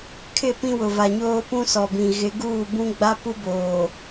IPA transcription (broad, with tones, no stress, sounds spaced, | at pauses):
kʰ ɪ˦˨ p ĩ˦ w ʊ˨ v a˨ ɲ oː˦ p ũ˦ s ɔ˨ b ĩ˨ ɣ ɪ˨˦ ɡ uː˦˨ b ũ˦ ɡ͡b a˦ p u˦ b oː˨